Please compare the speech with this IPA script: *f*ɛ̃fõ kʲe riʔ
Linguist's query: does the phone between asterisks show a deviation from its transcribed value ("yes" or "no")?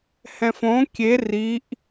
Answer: yes